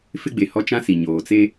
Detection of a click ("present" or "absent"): absent